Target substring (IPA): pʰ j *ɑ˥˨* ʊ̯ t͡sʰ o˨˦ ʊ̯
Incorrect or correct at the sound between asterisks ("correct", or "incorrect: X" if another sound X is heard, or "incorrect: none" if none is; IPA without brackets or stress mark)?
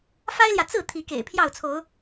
correct